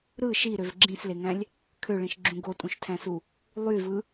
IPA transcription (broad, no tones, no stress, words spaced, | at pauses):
ɾɯ ʃiɾøv ɡ͡ǁĩsleŋæ̃lʲ | kʰøɭĩʃɡ͡ǁũ ɡotʼũʃtʰæ̃su | lˠyvɯ